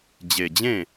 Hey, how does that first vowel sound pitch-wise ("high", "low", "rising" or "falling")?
low